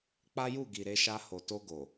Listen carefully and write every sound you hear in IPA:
k͡p a˦ j u˦˨ ɡ i˨ ɾ e˧ ʃ a˧ h o˨ t o˧ ɡ o˨

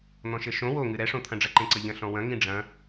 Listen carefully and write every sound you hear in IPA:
n̪ ɔ̃ ʃ ɘ ʃ õ w o ŋ ɨ ɾ ɛ ʂ õ t̪ʰ ɐ̃ ɖ͡ʐ ɐ ǃ ẽ ǀ ɐ ʎ ɐ̃ ɬ ɔ̃ w ɐ̃ ŋ ĩ ɖ͡ʐ ɐ̃

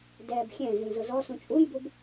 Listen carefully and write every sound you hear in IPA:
d ɛː b xʲ ɛ̃ z ĩ z ʊ z ɔ s ũ t͡ʃʼ u j b u b

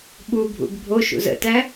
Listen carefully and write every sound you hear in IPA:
ɓ u bʱ ṵ ɡ bʱ o ʃ ṵ z ə̰ t æ

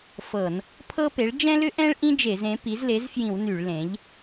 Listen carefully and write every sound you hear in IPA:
f ɤ˧˩˧ n | pʰ ɤ˥ p e˩˥ ɭ d͡ʒ ɛ̃˥ l ʏ˥ ʔ ɛ̃˥ ɭ ʔ ĩ˥ d͡ʒ e˧˩˧ z ẽ˩˥ p i˩˥ z l e˩˥ z f j ĩ˧˩˧ w n y˧˩˧ ɭ l ẽ˩˥ ʎ

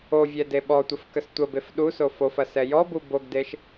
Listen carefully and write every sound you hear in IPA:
o vʲ ɛ d e ɓ ɔ tʷ ə f k ə s tʷ ə b e f ɗ u s o f o f ɐ s ɛ j ɔ b u b o ɡ d e ʃ

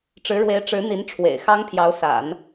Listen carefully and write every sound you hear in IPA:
ʈ͡ʂ ɻ̩˧˥ ɻ w e˧˥ ɪ̯ ʈ͡ʂ ɻ̩˧˥ n̪ i˧˥ n ʈ͡ʂʰ w ḛ˨˩ ɪ̯ x ɑ˥ ŋ pʰ j ɑ˧˥ ʊ̯ s a̰˨˩˦ n

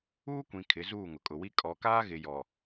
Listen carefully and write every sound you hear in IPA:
uː˦ kʷ ĩ˨ kʰ ɪ˨˦ z uː˦˨ ŋ ʊ˨ kʼ ʊ˨ w i˦ kʼ ɔ˨ k aː˦ ɣ ɪ˨ j ɔ˨

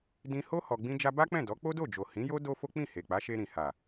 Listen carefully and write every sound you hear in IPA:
d ĩ˧ h o˦ h ɔ˧ ɡ͡b ĩ˦ d͡ʒ a˦ b a˦ k͡p ɛ̃˦˨ d ɔ˨˦ k͡p o˦ d o˦˨ d͡ʒ o˨ h ĩ˨˦ j o˦ d o˦ f o˦ k͡p ĩ˦˨ h e˨ k͡p a˨˦ ʃ e˧ ɾ ĩ˨ h a˨

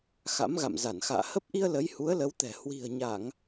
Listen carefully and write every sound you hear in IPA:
x a̰˧˥ m ɣ a̰˧˨ m z a˧˩ n x a̰ː˧˨ h ə˦˥ p̚ ʔ i˧ ə̯ l ə˨˦ j h u˨˦ ə̯ l ə˨˦ w t̪ ɛ̤˨˩ h w i̤˨˩ ə̯ ɲ a˧˩˨ ŋ

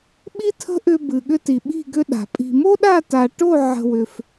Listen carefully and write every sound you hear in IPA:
ɓ i˦ tʰ ə̤˦ ʔ ʏ˧ b ɨ˨ ɠ ʏ˧ t i˨ ɓ i̤˦˨ ɡ ʏ˦ ɗ a̤˨ pʼ i̤˧ m o˦ ɗ a˦˨ t a˨ ʈ o˦˨ ʕ ə̤˧ w ʏ˧ f

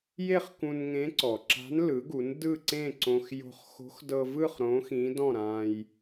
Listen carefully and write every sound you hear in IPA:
j e˥˨ χ k ũ˧ n ŋ ẽ˧˥ ǀ ɔ˩ ǁ a̤˧˥ n l ɯ˩˥ ɡ u˩˥ n d ɯ˥˨ ǀ ẽ˥˨ ǀ õ˧ x j o̤˧ χ x o̤˧˥ x d ɤ˧ v ɯ˥˨ χ ɾ õ˧˥ x ĩ˧˥ d ɔ̃˥˨ ɾ ã˧ j

